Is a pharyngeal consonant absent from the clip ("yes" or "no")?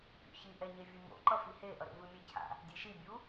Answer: yes